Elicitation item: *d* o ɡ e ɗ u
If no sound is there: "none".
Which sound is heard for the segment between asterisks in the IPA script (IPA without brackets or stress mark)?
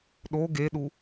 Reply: ɗ